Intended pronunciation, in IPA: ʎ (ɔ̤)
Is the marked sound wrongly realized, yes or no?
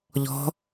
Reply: no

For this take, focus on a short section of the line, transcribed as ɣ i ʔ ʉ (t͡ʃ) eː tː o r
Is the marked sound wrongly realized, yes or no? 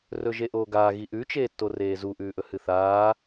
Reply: no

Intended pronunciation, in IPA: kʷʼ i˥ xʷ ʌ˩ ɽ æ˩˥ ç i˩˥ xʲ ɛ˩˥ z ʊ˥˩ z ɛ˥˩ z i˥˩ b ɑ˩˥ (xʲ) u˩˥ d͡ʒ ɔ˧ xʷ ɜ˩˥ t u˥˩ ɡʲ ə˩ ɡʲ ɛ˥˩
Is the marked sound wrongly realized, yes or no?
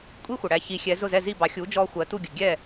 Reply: no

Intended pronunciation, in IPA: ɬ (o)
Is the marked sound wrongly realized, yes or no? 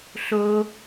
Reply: no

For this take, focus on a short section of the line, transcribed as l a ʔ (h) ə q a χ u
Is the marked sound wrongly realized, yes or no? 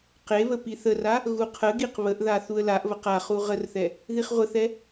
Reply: yes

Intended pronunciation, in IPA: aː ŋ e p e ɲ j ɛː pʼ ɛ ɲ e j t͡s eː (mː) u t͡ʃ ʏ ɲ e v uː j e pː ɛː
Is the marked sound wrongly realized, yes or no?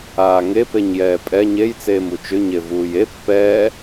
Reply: yes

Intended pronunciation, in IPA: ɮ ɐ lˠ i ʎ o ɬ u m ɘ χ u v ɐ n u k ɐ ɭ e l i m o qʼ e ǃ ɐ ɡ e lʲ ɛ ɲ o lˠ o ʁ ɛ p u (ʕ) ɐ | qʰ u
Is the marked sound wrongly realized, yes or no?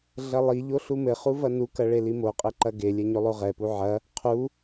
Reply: no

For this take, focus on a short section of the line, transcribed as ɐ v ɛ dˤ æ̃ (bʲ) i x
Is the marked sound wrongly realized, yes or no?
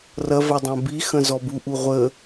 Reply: yes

